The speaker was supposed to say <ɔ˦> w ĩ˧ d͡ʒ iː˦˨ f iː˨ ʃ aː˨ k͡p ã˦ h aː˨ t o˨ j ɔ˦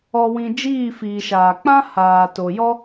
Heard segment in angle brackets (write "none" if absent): ɔ˧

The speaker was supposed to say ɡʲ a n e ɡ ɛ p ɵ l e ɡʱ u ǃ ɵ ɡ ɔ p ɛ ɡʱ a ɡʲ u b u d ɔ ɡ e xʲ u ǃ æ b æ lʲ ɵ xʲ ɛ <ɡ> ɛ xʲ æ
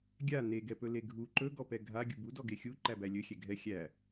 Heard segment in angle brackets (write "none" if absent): ɡʱ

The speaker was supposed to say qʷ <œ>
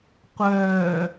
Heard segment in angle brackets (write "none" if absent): œː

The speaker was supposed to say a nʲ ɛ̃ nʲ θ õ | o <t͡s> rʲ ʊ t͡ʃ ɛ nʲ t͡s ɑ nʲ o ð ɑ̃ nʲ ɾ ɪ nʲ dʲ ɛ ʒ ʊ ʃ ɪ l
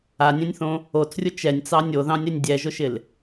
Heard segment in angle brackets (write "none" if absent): t͡s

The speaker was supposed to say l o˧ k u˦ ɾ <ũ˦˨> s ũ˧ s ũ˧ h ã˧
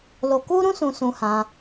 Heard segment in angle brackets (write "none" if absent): ũ˦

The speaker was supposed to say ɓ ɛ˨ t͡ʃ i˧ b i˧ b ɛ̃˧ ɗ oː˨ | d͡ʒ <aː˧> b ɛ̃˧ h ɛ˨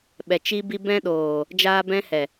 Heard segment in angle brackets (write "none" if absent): aː˧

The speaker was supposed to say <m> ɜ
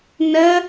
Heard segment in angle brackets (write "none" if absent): n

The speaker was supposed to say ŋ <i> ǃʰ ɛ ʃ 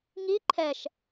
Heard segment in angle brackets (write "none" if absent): i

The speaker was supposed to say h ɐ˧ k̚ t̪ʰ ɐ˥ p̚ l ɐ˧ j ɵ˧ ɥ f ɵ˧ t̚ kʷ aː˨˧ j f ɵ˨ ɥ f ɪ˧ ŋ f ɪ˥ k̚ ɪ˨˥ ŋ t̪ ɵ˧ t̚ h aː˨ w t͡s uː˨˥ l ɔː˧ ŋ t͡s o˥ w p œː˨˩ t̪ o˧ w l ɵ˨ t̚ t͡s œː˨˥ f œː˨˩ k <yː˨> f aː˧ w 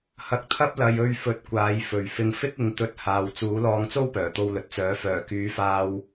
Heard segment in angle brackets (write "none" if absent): yː˨˥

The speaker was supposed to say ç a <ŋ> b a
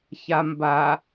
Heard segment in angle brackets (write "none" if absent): m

